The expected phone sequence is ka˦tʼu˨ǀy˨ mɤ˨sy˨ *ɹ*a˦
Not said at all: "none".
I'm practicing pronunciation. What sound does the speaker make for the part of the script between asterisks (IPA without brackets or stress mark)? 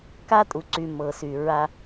ɹ